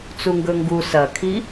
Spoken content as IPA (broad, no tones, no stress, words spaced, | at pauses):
t͡suŋɡɵŋɡu sɐkʰi